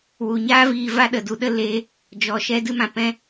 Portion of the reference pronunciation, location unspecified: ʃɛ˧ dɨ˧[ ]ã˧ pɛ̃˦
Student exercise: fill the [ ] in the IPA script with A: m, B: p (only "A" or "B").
A